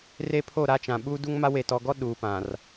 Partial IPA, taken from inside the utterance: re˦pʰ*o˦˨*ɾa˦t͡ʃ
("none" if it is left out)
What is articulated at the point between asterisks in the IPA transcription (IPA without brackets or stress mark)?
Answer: o˦˨